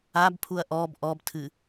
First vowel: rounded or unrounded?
unrounded